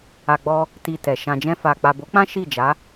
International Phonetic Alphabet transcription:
a˨ ɡ͡b ɔ˧ | t i˧ t ɛ˨ ʃ ã˨ d͡ʒ ɛ̃˧ f a˨ k͡p a˨ b o˨˦ k͡p ã˦ ʃ i˦˨ d͡ʒ a˨˦

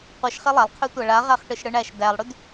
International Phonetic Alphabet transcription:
qʷ ɯ ʃ χ e lˠ a lˠ qʰ y tʷ æ ɭ a ʁ æ χ ʈ ɯ ʃ ɽ ɯ ɳ æ ʃ d æ lˠ ɽ y d

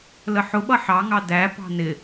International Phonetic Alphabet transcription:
l ə ħ ʊ ɓ ʌ ħ ɑ ŋ ɑ d æ p ɑ̤ n ɪ

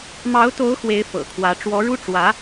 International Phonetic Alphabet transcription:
m ɑ˧˥ ʊ̯ t̪ o˧˥ ʊ̯ x w e˧˥ ɪ̯ f ɤ̰˨˩ kʰ w ä˧˥ ʈ͡ʂ w ɔ˧˥ ɻ u˥ ʈ͡ʂ w ä˧˥

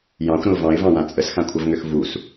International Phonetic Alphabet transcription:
j ɑ̃ xʷ ɾ ə̃ ʊ̯ v ɑ̃ ɪ̯ v ɑ̃ w ã t͡sʼ ə s x ã kʷʰ ʌ v ŋ ø x v u s

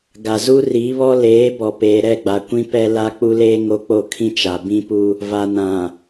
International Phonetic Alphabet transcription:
ɡ a˨ z u˦ r iː˨˦ β ɔ˦ l eː˨˦ b ɔ˨ p eː˨ ɾ ɛ˦˨ ɡ͡b a˨ kʷ ĩ˦ p ɛ˦ l a˦ k͡p u˦ l eː˦ ŋ o˦ k͡p o˦˨ kʰ ĩ˦ t͡ʃ a˨ b ĩ˦ p u˦ | v a˨ n ã˨

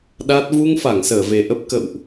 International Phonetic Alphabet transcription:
ɗ a˦˥ t̚ v u˧ ŋ f a˧˩ ŋ s əː˧˩ v e˨˩ ʔ ə˦˥ p̚ k ə̰˧˨ w ʔ

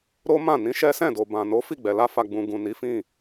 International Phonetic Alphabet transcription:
ɾ o˦ m ã˦˨ n ĩ˧ ʃ ɛ˦ s ɛ̃˦˨ d o˨ b ã˨ n o˨˦ f i˦˨ ɡ͡b ɛ˨ l a˧ f a˨ ɡ͡b ũ˨ ɡ ũ˨ n i˨˦ f ĩ˦˨

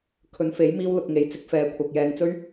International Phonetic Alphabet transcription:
kʰ ɵ˨˧ n f e˨˥ j m iː˥ w l ʊ˧ k̚ ŋ e˨˥ j t͡s ɪ˨˥ k̚ f ɛː˨ kʷʰ ɐ˨ k̚ j ɛː˧ ŋ t͡s ɵ˥ ɥ

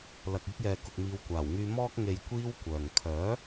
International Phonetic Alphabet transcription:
l ɐ˨ k̚ yː˧ k̚ j ɛː˨ k ʊ˨ k̚ m iː˨˧ w kʷ aː˨˩ w ŋ yː˧ m ɔː˧ k̚ ŋ e˨ j kʷ iː˥ w kʷ œː˨ ŋ kʰ œː˨˥

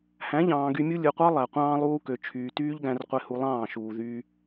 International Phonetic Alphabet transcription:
h æ̃˨˦ ʎ ɑ̃ː˨ ɡ y˧ mʲ u˦ lʲ ɯ˨ qʷ ɑ˦ lˠ æ˨ qʷ ɑ̃ː˦ lˠ uː˦ k ø˨ t͡ʃʰ yː˨ t yː˦ ʎ ɡ æ̃˧ r qʷ e˧ h u˧ lˠ ɑ̃ː˦˨ ʃ uː˨ ð yː˧

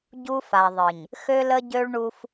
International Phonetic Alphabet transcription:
ɟ u˦ f a˨ ðˤ ɨ˨ ɲ | x ø˦ l ə˦ ɟ ø˦ ɭ ɳ u˦ f

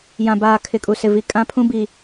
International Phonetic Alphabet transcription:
j ã˨ b aː˨ kʰ ɪ˨ kʼ u˨ s ɪ˨ v i˨ kʼ ã˦ pʰ ũ˦ b i˨

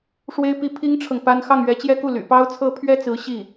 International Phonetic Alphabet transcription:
ʂ w e˥ ɪ̯ p i˥ pʰ i˥ ŋ ʈ͡ʂʰ ɤ˨ ŋ p a˥ n x ɑ˥˩ ŋ ɥ ɛ˧˥ t͡ɕ j ɛ˥ k u˥˩ l y̰˨˩ p ɑ˥ ʊ̯ t͡sʰ ɤ˥ pʰ ɥ ɛ˥ t͡s ɹ̩˧˥ ɕ i˥˩

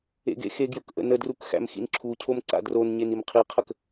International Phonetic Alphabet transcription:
ḛ ɡ ḛ x e ɡ j ɵ k ʔ ə̰ n ə d r u k x æ̰ m x ḭ n ǁʰ u cʰ o m ǀ a̰ d r o n ɲ e n i m qʰ i qʰ ə k

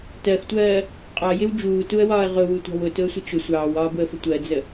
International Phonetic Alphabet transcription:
t ɜ x tʷ ɜː | qʼ ɒ j ɪ w d͡ʒ uː t u ə̯ w ɒː ə̯ ʁ ʊ w u tʷ ɑ̤ w ʊ t ʊ ə̯ sʷ ɪ t͡ʃ ʊ sʷ ɑː w ɒː b ʊ ə̯ f ə tʷ ɜ d͡z ə

